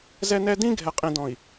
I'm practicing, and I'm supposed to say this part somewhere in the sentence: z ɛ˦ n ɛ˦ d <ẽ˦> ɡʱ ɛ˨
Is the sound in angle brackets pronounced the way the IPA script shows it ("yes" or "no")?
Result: no